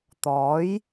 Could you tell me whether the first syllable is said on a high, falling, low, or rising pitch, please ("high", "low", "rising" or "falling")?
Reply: rising